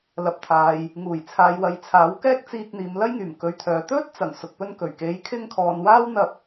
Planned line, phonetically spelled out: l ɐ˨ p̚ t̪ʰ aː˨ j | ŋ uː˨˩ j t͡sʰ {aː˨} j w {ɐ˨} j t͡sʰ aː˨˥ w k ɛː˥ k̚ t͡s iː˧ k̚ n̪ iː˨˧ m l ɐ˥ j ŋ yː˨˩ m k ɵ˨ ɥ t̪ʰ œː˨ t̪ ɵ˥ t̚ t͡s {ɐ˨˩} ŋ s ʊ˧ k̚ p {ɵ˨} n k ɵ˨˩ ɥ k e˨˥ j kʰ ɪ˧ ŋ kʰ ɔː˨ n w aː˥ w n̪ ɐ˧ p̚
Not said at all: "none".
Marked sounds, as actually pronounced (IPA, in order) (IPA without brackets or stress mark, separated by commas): aː˨, ɐ˨, ɐ˨˩, ɵ˥